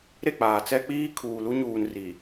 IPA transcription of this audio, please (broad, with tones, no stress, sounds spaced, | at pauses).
ɾ e˦˨ k͡p aː˨ t͡s ɛ˦ k͡p iː˦ kʰ uː˨ l u˦ ɲ uː˨ n r i˨